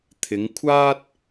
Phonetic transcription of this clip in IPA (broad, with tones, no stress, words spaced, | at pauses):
t̪ʰɪ˨˧ŋkʷʰaː˥t̚